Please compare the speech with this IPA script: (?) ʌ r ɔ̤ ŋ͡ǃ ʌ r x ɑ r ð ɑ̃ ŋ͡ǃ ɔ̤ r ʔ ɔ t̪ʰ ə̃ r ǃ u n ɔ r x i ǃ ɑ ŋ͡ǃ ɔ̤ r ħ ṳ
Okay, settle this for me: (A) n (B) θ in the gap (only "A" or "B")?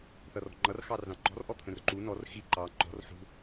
B